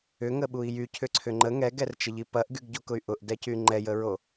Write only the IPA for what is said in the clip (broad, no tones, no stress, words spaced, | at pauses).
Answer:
ʏŋəɓui̯ jycʰʏǀʰʏ ŋ͡ǃə ŋɛɡɛrt͡ʃəʎi pɐʔɡyɡɟokʊy̯ ʔʊʔdɛcy ŋ͡ǃɛjəɹo